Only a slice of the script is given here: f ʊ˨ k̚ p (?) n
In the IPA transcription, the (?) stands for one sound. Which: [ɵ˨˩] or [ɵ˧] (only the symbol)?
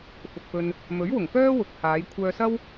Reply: ɵ˧